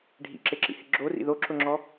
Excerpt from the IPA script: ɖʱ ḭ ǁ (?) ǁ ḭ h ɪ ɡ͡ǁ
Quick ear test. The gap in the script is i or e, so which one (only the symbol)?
e